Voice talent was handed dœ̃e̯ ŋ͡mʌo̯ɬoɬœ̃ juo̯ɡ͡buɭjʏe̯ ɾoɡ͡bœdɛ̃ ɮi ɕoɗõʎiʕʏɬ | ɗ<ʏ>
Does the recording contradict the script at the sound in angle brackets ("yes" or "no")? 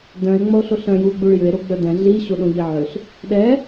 yes